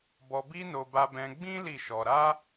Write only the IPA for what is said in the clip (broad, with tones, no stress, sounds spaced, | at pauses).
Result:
b ɔ˧ b i˦ n o˧ b a˧ b ɛ̃˧ ɡ͡b ĩ˦ l i˦˨ ʃ ɔ˧ ɾ a˦